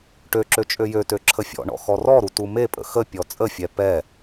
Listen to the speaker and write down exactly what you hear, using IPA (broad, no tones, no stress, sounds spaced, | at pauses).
ʈ ø ǁ ø t͡ʃʼ ø j ø t ø ǁʰ ə fʲ ɔ̰ ɳ ɔ̰ x ɔ r ɔ ɾ u t u m e pʼ ə̰ x ə pʲ ɔ t͡sʼ ə fʲ ɛ p ɛ